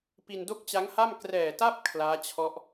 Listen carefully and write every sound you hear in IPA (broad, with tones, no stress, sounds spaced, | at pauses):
p i˧ n d o˥˩ k̚ t͡ɕ a˦˥ ŋ h a˥˩ m k r ɛː˨˩ t a˥˩ p̚ kʰ l aː˦˥ t͡ɕʰ ɔ˦˥ ʔ